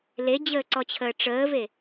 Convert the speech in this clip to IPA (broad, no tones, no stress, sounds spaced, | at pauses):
l e d͡ʑ əː ǀ ɔ t͡ɕʰ əː ʈ͡ʂ əː v e